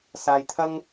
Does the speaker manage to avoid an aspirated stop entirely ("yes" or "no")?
no